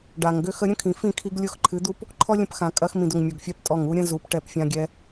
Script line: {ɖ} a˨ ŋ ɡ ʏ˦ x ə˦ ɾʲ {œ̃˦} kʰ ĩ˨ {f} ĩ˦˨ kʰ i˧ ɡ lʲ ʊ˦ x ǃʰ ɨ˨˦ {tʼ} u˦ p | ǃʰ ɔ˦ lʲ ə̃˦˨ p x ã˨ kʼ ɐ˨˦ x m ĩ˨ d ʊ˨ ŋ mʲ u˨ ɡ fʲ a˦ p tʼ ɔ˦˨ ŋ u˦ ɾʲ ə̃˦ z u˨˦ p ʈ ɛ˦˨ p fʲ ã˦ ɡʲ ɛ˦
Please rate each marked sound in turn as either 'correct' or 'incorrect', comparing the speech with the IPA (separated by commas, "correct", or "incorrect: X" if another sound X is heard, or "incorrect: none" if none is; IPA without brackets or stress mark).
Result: correct, incorrect: ə̃˦, correct, incorrect: d̪